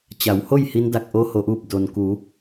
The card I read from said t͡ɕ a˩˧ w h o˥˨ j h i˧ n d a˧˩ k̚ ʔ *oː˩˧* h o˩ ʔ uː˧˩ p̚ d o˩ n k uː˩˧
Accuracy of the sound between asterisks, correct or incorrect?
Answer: incorrect